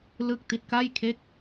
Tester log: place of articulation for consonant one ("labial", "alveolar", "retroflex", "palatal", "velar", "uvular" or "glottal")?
alveolar